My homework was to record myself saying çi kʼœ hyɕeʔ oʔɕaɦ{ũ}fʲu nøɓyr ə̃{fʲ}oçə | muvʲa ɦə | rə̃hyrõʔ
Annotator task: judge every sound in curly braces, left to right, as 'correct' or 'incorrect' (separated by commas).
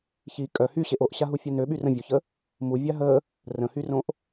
incorrect, incorrect